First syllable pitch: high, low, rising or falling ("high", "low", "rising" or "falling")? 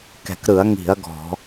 low